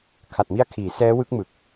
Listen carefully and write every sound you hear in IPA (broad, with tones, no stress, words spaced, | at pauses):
kʰa˨˩t̚mi˦˥a̯kʰiː˩˦ sɛː˦˥wɯ˦˥k̚mɯ˨˩k̚